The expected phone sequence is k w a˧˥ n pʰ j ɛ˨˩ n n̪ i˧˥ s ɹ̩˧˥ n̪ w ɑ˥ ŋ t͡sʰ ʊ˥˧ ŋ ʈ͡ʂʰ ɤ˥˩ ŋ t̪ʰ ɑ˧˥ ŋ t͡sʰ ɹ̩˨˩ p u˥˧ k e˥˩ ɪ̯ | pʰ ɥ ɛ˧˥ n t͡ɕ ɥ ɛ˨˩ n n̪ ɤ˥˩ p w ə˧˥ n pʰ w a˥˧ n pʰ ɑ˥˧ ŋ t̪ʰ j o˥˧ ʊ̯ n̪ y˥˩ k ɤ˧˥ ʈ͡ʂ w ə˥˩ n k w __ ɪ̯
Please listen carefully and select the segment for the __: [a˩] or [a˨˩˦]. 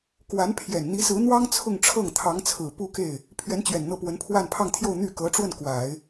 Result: a˨˩˦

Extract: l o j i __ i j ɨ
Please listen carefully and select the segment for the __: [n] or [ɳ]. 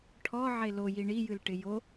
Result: ɳ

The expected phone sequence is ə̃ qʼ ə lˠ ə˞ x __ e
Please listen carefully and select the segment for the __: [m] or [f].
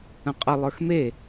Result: m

